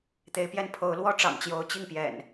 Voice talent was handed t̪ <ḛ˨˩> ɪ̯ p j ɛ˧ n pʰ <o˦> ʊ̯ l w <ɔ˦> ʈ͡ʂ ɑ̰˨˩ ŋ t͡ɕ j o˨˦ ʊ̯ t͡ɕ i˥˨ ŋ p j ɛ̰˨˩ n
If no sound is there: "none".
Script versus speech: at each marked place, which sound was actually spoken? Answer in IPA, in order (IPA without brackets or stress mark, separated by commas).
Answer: e˨˦, o˨˦, ɔ˦